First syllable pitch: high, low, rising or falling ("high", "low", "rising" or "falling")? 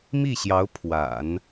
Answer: falling